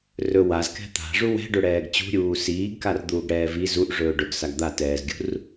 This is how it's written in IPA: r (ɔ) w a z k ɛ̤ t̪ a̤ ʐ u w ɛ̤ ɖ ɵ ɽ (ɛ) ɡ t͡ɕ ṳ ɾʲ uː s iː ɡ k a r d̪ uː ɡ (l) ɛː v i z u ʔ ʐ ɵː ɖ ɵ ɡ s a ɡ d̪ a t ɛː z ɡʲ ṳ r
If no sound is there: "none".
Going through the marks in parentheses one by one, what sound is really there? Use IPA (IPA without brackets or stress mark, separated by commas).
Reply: ɵ, ɛː, ɽ